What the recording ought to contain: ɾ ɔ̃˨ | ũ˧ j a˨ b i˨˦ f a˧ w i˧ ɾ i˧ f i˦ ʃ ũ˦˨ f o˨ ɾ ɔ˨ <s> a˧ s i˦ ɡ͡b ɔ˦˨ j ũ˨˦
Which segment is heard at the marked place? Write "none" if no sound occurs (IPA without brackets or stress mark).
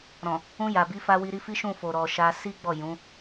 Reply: ʃ